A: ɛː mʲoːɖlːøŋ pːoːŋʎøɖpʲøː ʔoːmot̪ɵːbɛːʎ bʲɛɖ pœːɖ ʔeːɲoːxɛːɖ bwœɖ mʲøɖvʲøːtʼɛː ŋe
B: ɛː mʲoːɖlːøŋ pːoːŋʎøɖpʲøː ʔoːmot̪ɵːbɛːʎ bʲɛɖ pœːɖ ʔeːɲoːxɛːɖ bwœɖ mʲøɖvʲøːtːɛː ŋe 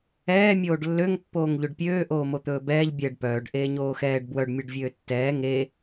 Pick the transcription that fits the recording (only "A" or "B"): B